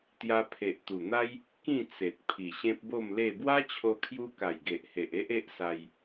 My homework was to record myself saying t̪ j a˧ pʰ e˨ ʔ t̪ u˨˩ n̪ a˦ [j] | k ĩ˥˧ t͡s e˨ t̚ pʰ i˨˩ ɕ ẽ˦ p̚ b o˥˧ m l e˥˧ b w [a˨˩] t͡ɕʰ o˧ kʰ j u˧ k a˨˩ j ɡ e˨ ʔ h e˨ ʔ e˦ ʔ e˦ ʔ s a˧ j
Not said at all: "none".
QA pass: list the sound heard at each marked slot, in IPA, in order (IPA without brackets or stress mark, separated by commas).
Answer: j, a˦